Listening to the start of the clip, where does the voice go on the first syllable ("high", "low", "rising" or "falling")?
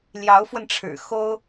rising